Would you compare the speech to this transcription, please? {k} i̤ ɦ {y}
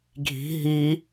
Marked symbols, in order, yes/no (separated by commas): no, no